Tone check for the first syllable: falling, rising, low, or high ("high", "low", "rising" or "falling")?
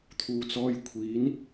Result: low